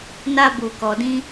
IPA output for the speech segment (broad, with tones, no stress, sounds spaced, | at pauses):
n a˧ b u˨ k ɔ˨ d ĩ˧